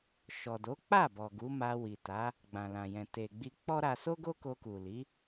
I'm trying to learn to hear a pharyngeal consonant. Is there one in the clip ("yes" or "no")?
no